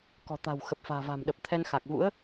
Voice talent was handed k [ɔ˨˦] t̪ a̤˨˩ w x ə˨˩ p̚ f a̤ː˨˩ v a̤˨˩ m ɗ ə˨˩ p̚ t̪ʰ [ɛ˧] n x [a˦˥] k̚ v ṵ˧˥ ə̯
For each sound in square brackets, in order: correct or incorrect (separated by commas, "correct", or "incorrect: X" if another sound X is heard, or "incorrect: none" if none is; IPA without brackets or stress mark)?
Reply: incorrect: ɔ̤˨˩, correct, incorrect: a˨˩